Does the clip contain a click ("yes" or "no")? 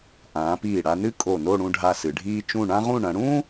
no